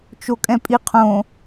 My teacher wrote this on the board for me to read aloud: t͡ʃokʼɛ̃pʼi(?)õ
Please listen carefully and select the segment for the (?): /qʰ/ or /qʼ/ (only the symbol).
qʰ